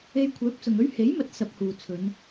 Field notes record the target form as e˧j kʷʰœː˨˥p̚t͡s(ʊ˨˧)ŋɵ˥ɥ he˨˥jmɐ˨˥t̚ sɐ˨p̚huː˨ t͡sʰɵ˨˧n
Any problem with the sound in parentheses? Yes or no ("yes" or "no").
yes